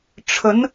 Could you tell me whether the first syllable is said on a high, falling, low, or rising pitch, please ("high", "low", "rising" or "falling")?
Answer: rising